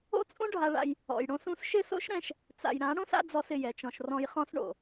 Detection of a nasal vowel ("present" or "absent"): present